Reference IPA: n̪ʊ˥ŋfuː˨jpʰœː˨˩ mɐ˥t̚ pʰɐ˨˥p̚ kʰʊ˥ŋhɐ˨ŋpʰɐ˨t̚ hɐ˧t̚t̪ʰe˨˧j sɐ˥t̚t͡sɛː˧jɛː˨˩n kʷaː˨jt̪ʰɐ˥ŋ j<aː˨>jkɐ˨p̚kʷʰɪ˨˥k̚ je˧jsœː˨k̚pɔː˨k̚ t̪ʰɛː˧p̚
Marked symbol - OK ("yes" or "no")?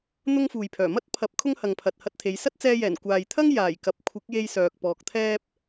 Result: no